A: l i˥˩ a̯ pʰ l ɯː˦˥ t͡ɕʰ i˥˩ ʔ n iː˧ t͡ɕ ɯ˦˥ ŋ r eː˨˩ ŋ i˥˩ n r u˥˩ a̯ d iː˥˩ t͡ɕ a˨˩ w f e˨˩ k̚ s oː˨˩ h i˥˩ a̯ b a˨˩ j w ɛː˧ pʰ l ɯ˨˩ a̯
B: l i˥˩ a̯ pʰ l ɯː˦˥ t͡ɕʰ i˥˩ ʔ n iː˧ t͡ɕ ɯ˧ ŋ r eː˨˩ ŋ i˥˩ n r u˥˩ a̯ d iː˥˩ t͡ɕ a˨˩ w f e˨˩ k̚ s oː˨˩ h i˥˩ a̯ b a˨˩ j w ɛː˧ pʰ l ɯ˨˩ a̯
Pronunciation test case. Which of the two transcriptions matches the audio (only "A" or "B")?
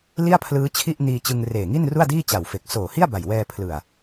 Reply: B